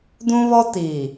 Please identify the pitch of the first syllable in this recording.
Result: high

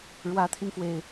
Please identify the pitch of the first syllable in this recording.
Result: rising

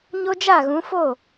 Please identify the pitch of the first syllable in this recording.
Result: high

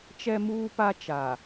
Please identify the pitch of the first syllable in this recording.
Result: high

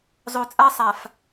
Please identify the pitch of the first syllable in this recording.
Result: low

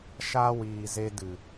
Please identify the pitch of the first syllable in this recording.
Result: high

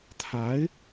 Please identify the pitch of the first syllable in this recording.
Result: rising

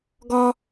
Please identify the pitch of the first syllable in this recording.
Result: high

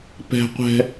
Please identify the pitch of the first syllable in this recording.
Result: high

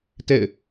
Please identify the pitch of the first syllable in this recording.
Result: falling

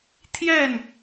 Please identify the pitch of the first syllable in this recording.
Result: falling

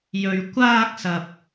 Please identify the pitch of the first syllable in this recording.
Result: low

